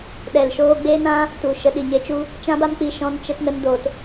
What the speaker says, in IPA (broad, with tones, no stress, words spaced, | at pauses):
ɗɛ˨lʃoː˧ɡ͡be˦ nã˦ | tu˨ʃə˧ ɗi˨ɲe˧t͡ʃu˧ | t͡ʃã˦ba˦mk͡pi˧ ʃɔ̃˧nt͡ʃə˧tnə˧n do˨t